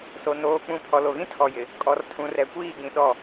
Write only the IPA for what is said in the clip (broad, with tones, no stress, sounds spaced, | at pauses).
s o˨ n oː˨ k͡p ũ˨ pʰ ɔ˨ l o˨ ɣ ĩ˦ tʰ ɔ˨ j ɪ˨ | kʼ ɔ˨ r tʰ ũ˨ r ɛ˨ kʷ iː˦˨ ɡ ĩ˨ ɗ ɔ˦˨